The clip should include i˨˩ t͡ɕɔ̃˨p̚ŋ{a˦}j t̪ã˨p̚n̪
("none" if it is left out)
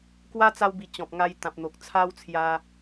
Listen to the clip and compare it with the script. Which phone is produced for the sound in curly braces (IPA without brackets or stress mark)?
a˧